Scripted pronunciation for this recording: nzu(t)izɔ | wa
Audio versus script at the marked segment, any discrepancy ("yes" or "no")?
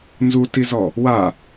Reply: no